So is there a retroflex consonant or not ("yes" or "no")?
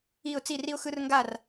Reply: no